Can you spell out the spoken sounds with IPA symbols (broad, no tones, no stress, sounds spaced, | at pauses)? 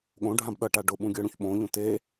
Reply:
ɠ õ ɖʱ ã b ɗ ʌ ʈ a ɖ ʊ ɓ ũ ɡʲ ɤ ɽ ũ ç ɓ õ ʎ ũ t e